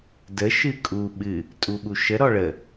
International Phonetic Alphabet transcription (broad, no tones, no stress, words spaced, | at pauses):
də ʃɨkʼu ɓɨ | tʼuɓuʃə ɾɔɭə